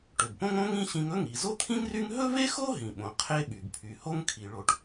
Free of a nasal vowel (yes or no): no